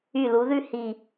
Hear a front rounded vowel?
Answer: yes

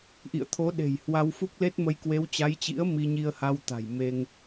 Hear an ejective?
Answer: no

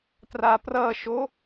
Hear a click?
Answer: no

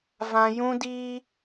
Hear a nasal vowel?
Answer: yes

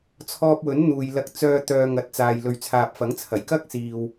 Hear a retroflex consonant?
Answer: no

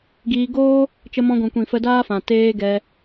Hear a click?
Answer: no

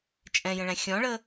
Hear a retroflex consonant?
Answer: yes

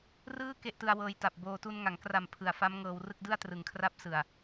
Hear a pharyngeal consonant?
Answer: no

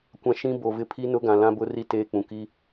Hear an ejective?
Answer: no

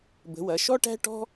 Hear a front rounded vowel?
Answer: no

